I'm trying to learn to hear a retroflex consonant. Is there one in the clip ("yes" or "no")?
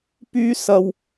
no